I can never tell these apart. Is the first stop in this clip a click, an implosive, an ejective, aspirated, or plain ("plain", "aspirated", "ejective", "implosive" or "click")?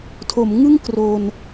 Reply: aspirated